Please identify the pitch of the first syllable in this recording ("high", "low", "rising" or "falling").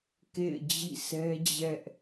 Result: falling